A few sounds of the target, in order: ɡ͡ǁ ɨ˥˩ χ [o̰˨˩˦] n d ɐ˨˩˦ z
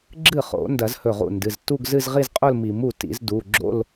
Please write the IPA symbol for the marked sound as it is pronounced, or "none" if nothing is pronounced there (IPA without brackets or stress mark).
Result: o̰˨˩˦